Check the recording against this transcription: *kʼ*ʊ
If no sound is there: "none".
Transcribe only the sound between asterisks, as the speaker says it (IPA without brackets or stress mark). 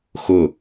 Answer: x